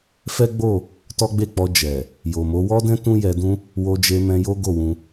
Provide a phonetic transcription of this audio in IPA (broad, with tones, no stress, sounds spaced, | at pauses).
f ɛ˦ ɡ͡b o˦˨ | t ɔ˦ ɡ͡b e˦˨ k͡p ɔ˧ d͡ʒ ɛ˨ | j o˨ m o˨˦ w ɔ˦ d ɛ̃˦ t ũ˦ j ɛ˧ d ũ˦ | w o˧ d͡ʒ e˧ m ɛ̃˧ j o˦ ɡ o˦˨ w ũ˧